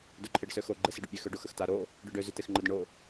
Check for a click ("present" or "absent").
present